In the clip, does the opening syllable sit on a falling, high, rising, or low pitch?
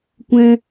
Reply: high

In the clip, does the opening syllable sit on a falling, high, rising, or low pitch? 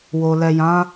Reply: low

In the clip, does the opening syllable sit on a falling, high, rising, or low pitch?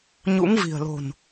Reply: rising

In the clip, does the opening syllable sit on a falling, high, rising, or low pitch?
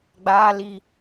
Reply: high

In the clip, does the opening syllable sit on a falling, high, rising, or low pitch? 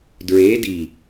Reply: rising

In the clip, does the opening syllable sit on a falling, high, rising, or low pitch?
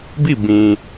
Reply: falling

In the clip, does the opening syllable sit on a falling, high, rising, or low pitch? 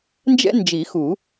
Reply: high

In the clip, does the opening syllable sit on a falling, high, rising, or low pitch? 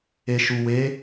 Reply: low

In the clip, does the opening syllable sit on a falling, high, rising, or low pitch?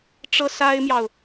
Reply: high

